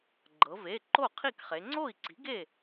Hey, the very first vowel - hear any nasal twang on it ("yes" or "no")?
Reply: no